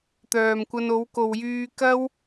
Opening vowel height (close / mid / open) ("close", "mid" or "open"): mid